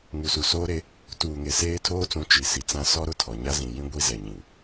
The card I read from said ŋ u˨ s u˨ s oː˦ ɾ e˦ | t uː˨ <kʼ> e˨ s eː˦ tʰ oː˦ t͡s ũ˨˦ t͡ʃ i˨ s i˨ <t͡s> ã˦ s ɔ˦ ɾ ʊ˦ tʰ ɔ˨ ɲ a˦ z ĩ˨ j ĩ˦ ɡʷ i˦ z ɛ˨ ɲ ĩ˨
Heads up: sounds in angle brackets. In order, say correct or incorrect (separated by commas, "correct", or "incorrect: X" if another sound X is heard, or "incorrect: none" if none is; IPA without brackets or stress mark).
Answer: incorrect: ŋ, correct